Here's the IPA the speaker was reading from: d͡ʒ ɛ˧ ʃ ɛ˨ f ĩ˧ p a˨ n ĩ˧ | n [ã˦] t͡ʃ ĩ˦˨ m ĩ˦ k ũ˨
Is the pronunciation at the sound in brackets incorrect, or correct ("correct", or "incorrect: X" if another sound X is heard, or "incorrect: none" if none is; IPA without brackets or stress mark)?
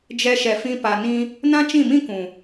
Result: correct